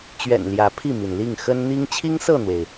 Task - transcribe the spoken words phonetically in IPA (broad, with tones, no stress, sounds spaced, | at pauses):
t͡ɕ ɥ ɛ̰˨˩ n l j ä˨˦ pʰ i˥˨ m i˩ n l i˥˨ ŋ x ə˦ n n̪ i˦ ŋ t͡ɕʰ i˦ ŋ s ɤ˥˨ n̪ w e˩ ɪ̯